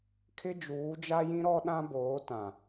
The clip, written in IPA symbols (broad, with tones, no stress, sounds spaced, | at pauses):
kʰ ɪ˦ d͡ʒ uː˨˦ d͡ʒ a˦ j ĩ˦ ɾ ɔ˦ ɗ ã˦ b oː˨˦ t ã˨